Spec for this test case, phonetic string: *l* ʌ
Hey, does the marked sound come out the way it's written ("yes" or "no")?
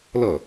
yes